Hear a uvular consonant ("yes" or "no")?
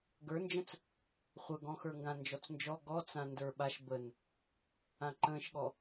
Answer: yes